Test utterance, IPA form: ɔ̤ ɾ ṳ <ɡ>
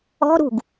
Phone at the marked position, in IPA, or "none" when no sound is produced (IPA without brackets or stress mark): ɡ